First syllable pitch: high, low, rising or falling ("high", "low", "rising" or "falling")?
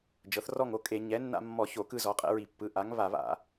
rising